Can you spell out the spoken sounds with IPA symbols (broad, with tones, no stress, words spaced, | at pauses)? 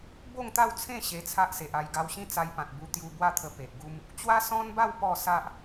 bo˥˧ŋt̪a˥˧wt͡sʰẽ˥˧ ɕe˧t͡sʰa˦ʔse˨ʔa˧j ɡa˧wɕĩ˥˧t͡sa˧jpã˨t̚ bu˧t̪ju˧bwa˥˧t̪ʰə˧ pe˨ʔɡu˦m | t͡ɕwa˦sɔ̃˦nba˥˧w pɔ˥˧sa˦ʔ